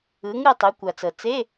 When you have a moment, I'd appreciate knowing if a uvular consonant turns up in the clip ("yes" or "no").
no